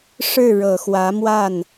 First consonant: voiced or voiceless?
voiceless